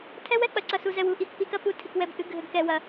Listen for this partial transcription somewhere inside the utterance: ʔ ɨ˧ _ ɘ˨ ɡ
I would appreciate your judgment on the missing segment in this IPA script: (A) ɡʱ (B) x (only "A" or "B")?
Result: A